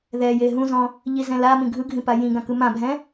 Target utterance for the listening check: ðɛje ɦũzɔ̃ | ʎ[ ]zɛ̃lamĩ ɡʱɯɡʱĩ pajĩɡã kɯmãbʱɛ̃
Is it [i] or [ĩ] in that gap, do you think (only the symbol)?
i